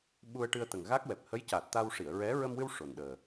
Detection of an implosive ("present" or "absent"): present